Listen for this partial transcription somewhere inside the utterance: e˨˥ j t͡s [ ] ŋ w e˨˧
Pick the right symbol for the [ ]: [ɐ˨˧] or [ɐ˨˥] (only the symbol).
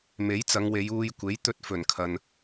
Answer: ɐ˨˧